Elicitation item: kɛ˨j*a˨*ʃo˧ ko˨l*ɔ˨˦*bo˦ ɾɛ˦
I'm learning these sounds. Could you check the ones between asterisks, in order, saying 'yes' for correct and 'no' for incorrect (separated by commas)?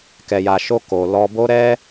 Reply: yes, no